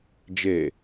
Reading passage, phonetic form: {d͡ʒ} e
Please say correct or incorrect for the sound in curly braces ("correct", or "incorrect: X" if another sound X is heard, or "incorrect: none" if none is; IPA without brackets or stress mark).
correct